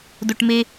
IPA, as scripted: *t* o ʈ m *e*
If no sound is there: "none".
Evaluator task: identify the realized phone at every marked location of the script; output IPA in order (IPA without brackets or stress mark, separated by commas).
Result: d, e